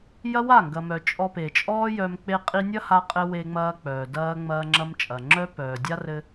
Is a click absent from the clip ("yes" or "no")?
no